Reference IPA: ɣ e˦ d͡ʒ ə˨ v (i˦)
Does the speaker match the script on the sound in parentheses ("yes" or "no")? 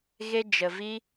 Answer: yes